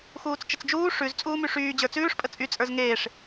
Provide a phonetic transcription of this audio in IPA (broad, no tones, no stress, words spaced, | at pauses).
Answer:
xuːt͡st͡ʃət͡sd͡ʒuː ʂʉz t͡sʼuːmyʂyːd͡ʑə˞ t͡sʉːʂpʼə t͡sʼyt͡sʼə˞z ŋeːʂ